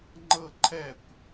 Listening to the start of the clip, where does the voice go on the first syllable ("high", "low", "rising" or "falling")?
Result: falling